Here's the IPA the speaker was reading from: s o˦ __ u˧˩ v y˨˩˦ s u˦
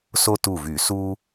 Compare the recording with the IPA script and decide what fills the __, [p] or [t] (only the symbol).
t